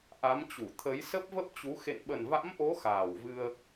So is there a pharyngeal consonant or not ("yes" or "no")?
no